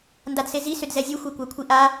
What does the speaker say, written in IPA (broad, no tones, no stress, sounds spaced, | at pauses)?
n d a d s e z i s ʏ d z ɛ zʲ u xʷ ɛ kʷ a kʷʰ i ʔ a